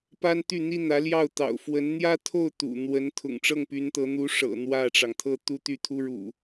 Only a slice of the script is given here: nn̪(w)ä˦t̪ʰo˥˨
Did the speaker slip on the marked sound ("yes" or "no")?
yes